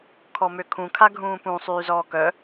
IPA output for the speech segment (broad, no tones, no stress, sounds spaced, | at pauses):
kʰ ɔ m ø kʰ ũ kʰ a ɡʱ ũː p ũ sˤ yː z ɔː k œ